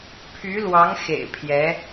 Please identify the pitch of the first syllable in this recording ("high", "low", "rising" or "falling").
rising